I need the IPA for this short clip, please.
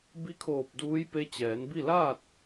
bi˧˥kʰoː˧˩p̚ duː˧˥jpe˧˥ t͡ɕɛː˩˧nbi˥˨ laː˥˨t̚

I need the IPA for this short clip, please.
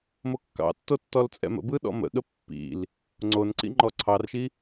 mokːɑ̰tːo tːɔlt͡sʼɛ̰mə̰bɯ ɗɔ̰mə̰ɠə pːḭl | ŋ͡ǀonǀḭ ŋ͡ǃɔǀʰɑrʃi

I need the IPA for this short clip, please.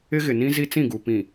ɪ˦ɣɪ˨nĩ˦ zi˦t͡sĩ˦˨ɡu˨ pĩ˨

